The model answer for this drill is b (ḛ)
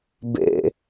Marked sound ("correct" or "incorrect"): correct